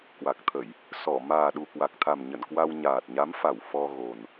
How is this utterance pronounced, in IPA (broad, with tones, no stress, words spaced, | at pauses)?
kwa˨˩k̚t̪ʰə˧˩˨j | sɔ˧˩ maː˨˩ɗu˨˩kwa˨˩k̚t̪ʰa˨˩m ɲə̰˧˨nkwa˧w ɲaː˨˩t̚ɲa˨˦mfa˧˩w fɔ˧ɣo˨˩n